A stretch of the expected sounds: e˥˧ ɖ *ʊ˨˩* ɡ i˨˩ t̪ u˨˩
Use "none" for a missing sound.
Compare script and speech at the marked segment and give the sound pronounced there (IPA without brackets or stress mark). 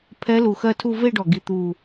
ɔ˨˩